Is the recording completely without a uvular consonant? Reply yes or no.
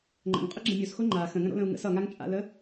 no